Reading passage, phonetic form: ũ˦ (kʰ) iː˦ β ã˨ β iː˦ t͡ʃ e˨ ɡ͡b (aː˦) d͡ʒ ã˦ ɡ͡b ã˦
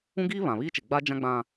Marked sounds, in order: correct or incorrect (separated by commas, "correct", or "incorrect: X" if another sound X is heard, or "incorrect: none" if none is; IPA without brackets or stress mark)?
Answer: incorrect: ɡ, incorrect: a˦